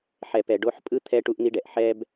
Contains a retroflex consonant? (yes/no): yes